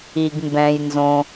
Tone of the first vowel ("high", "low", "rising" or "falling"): low